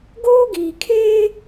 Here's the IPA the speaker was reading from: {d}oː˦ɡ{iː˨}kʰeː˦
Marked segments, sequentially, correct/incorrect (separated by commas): incorrect, correct